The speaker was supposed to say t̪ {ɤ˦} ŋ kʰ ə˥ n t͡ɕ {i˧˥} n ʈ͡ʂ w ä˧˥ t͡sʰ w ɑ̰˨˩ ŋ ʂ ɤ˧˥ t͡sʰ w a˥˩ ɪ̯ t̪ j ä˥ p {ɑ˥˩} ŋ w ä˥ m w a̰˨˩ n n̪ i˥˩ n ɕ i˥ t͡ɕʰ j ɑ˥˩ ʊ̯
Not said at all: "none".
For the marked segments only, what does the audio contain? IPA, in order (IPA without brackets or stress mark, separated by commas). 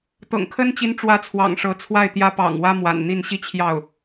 ɤ̰˨˩, i˧˥, ɑ̰˨˩